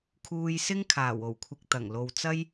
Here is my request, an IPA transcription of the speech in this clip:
kʰuː˧jsɪ˥ŋ kʰaː˨˩wo˨˩wkʷʰɪ˨k̚ t̪ɐ˨˩ŋlo˨wt͡sɐ˥j

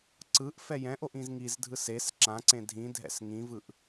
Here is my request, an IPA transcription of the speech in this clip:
ǀɯʔ fɛjɛ̃ʔoʔ ĩzŋizdʱɯs es ǁãǀẽ dʱĩdʱɛ̰s ŋĩvɯʔ

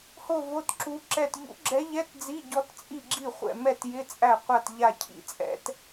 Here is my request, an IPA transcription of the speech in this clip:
ho˥˨vo˧˥˧tǁu˧˥ǁɛ˥˨t ʎṵ˧˥ɡ͡ǁɛ˧˥ʎɛ˧˥˧t d͡zi˧˥˧ɟɔ˧˥tt͡sʼi˥˨ɡ͡ǁi˥˨ χʷɛ̰˥˨mɛ˥˨tjɪ˧˥˧ t͡sʼæ˥˨qʷa˥˨t ʎa˥˨cʰḭ˥˨t͡sʼɛ̰˧˥t

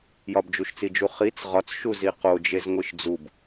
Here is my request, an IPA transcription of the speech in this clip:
jɒbd͡ʒuʃt͡sid͡ʒu χit͡s ʁɒt͡sʃu ziqod͡ʒez ŋʷiʃd͡zub

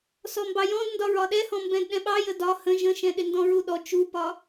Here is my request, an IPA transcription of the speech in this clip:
sɔmbɑjɔ̃dndɒ ɹɒɗɛhɔ̃ mbɛ̃dɗɛ̃ɓɑ jədɒ hə̃ ʒə̃ʃɛ̃ ɗɪndɔ̃ɹuɗɔ t͡ʃupɒ

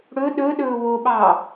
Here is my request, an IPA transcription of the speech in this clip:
ɽɵ ɗɵ ɗɵːwoɓɑː

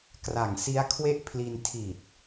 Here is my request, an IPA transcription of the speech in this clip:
kra˨˩ŋsi˦˥a̯kʰwe˥˩ʔpʰli˧n tʰi˨˩t̚

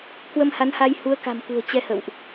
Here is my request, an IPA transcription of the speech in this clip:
kwə˧mha˨˦nha˧j hu˨˦ə̯ka̤˨˩m kṳ˨˩ə̯ t͡ɕɛ˧hə̰˧˨wʔ

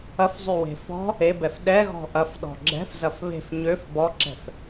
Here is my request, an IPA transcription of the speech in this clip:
ɐfzˤywe̤ fɔ̤ | ebɛf ɗɛɣɔ̤ ʔɐfɗɔ̤ ɡ͡ǁɛ̤fzɐf βe̤f ɲøf bɔǁɛ̤f

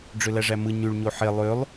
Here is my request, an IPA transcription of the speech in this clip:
ɖ͡ʐølæʐæmɯ ɲyɭ ɲoħe lˠølˠ

